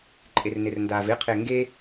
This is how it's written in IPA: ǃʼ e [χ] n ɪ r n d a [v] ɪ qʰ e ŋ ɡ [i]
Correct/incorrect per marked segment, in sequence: incorrect, correct, incorrect

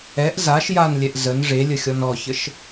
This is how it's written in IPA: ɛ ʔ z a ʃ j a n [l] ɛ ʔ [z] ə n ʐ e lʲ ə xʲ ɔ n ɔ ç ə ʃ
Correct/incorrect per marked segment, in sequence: incorrect, correct

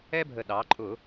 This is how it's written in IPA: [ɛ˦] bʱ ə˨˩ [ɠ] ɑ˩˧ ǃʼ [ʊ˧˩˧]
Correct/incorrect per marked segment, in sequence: correct, incorrect, correct

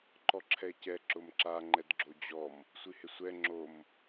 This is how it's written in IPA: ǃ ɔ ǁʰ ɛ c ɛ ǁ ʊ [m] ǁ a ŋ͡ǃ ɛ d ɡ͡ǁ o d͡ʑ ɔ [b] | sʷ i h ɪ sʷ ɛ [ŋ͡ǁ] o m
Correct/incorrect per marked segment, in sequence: correct, incorrect, correct

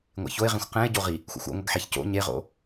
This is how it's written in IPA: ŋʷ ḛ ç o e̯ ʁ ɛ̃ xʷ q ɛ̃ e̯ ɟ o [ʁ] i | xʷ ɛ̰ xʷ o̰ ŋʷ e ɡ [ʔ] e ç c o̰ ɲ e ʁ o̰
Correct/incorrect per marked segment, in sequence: correct, incorrect

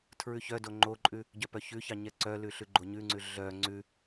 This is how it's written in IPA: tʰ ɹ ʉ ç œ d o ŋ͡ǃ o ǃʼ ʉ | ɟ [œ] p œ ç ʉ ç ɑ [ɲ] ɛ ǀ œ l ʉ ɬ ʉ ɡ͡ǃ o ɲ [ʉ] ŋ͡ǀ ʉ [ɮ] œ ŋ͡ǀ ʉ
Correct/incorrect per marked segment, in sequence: correct, correct, correct, correct

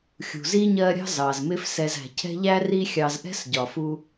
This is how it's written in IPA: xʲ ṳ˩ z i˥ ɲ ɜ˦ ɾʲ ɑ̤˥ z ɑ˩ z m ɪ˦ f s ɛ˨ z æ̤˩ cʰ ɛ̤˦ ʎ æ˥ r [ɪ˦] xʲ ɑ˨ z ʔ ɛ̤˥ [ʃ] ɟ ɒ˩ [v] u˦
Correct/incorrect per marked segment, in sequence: incorrect, incorrect, incorrect

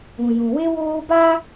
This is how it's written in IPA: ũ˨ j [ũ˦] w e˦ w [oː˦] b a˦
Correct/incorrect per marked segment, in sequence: incorrect, correct

